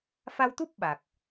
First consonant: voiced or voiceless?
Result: voiceless